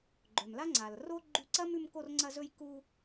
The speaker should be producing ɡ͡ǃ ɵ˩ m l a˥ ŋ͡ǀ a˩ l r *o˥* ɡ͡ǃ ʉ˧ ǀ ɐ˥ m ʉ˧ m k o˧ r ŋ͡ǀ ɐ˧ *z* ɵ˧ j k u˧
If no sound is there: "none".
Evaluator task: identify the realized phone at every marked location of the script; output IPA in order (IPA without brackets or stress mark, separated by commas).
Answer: o˥, z